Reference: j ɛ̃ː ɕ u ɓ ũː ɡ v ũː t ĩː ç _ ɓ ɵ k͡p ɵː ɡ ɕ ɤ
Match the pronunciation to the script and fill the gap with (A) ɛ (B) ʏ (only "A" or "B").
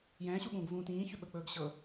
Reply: B